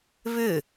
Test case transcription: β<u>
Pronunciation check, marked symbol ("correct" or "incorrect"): incorrect